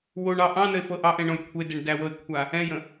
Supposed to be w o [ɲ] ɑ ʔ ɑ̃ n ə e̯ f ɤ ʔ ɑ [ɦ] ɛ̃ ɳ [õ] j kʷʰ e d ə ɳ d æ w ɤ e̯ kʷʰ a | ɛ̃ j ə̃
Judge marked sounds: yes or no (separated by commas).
no, no, yes